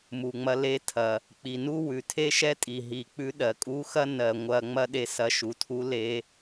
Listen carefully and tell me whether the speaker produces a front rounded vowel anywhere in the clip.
no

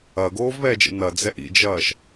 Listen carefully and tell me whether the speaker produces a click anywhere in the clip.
no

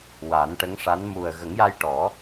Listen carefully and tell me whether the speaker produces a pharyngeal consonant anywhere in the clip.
no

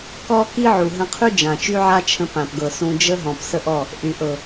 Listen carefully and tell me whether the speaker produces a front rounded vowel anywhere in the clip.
yes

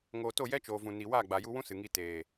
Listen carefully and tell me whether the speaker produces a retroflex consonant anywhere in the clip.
no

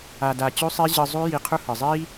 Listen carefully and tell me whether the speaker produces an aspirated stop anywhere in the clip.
yes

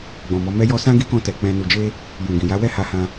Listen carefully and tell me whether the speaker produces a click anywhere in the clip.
no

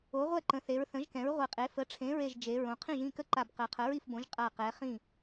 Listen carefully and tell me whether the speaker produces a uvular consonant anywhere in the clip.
yes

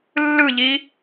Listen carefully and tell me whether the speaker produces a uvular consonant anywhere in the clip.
no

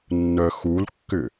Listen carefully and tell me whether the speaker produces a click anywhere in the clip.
no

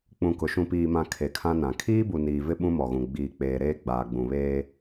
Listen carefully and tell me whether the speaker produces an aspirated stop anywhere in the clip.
yes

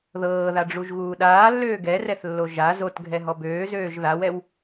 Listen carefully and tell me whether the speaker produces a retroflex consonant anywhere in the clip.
yes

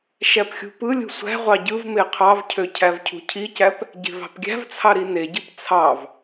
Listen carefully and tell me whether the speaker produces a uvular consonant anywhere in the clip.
yes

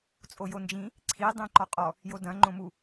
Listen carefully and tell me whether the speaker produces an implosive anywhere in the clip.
no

